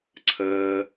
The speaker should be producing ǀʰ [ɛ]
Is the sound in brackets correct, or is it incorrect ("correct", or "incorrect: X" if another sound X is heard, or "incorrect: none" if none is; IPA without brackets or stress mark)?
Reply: incorrect: ɜ